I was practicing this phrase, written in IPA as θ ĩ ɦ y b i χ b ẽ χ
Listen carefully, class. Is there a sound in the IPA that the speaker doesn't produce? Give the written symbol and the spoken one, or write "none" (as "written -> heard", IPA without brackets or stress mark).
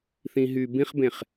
i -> ĩ